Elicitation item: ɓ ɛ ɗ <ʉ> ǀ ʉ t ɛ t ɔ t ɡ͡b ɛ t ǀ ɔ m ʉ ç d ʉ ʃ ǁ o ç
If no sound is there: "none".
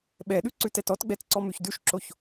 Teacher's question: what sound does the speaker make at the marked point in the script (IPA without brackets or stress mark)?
ʉ